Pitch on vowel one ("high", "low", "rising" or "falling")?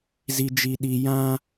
low